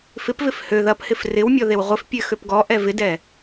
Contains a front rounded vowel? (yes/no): yes